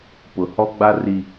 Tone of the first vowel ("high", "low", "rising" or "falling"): low